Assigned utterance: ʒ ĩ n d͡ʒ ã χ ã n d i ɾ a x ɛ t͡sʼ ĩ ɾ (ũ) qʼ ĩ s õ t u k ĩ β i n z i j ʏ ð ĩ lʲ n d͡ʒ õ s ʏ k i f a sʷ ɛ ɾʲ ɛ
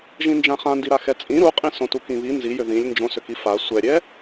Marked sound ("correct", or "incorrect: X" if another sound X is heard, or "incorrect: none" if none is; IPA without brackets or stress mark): incorrect: u